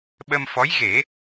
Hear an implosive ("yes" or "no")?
yes